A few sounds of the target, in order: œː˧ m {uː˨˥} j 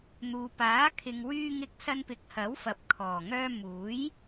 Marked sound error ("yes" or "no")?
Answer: no